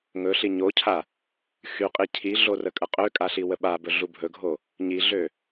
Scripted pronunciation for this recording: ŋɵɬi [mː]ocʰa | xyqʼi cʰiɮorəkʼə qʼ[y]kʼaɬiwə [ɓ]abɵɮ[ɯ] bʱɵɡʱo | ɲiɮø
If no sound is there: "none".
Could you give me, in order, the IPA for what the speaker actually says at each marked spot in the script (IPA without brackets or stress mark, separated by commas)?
ɲ, ø, ɓ, u